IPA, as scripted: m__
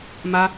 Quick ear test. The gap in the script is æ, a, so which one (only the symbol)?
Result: a